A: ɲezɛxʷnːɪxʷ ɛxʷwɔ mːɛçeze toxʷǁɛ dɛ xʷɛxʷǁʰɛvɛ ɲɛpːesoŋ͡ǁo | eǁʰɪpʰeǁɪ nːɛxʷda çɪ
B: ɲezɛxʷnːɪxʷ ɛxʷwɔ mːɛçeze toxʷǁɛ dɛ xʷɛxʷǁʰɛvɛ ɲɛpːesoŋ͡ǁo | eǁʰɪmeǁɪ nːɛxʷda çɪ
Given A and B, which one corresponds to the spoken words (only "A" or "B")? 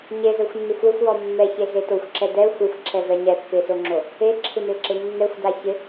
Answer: B